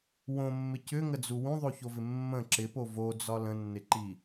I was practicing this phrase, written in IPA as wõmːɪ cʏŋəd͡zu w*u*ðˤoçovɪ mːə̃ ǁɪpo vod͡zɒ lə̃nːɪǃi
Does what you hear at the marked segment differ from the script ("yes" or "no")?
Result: yes